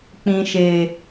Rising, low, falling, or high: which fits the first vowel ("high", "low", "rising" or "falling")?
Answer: low